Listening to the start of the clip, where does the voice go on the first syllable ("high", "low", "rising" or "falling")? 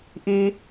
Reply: low